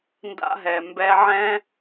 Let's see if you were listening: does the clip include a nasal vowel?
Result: yes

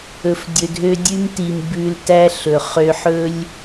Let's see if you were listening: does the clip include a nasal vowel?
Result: no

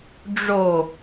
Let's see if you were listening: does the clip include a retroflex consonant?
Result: yes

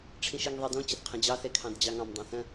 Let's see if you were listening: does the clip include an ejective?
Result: no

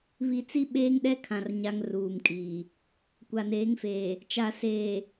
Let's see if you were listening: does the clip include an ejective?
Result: yes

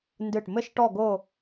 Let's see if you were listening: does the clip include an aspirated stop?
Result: no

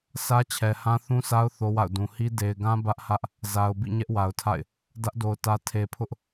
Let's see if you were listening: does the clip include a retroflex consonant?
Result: no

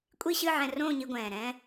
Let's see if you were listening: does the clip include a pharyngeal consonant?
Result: yes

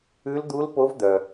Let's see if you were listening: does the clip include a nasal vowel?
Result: no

